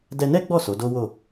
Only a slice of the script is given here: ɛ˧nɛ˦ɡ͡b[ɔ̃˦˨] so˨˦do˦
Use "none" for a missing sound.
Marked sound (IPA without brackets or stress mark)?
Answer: ɔ˦˨